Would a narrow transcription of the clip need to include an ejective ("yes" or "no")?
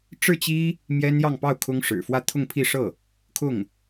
no